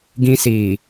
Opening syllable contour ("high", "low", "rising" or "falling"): high